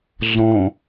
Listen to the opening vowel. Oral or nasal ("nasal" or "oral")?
nasal